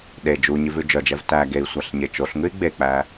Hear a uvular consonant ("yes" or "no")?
no